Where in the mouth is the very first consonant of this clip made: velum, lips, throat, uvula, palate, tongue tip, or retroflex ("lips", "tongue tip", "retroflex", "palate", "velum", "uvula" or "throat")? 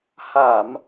throat